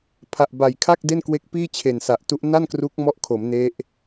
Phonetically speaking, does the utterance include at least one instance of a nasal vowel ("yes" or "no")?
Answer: no